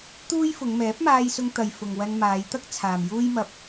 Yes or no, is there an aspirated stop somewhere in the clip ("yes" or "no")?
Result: yes